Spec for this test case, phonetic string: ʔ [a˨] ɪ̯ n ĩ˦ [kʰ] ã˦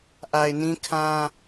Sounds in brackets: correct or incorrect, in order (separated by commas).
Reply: correct, correct